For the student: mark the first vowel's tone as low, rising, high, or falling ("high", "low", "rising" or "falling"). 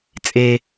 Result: low